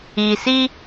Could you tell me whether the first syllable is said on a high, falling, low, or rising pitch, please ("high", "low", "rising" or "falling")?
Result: low